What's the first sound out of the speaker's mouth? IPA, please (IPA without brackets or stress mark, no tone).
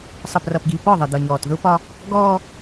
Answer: sˤ